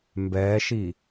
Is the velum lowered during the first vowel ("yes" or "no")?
no